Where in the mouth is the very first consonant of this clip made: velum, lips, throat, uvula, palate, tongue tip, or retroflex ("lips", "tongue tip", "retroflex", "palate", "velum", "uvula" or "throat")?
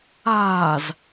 tongue tip